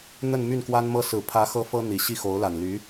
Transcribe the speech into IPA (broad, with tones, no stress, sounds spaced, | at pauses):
n̪ ə˥˧ n m y˥˩ n k w a˥ n m ɤ˥ s ɹ̩˨˩ pʰ ä˧˥ x ɤ˥ f ɤ˥ n̪ i˨˩ ɕ i˥˩ x o˧˥ ʊ̯ l a˨˩ n l y˧˥